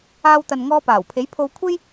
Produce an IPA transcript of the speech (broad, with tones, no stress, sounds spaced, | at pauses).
aː˧ w t̪ ɐ˨ n ŋ ɔː˧ p aː˨˩ w pʰ e˨˥ j pʰ o˧ w kʷʰ e˥ j